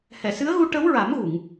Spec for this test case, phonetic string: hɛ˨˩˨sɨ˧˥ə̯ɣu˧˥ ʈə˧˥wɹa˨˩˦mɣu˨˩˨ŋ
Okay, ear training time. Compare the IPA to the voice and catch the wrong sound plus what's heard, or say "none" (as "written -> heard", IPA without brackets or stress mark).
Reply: none